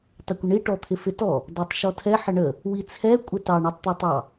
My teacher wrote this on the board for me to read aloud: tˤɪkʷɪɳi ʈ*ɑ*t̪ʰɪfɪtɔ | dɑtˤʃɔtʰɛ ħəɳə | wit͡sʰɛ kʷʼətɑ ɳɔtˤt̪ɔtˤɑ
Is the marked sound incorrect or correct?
incorrect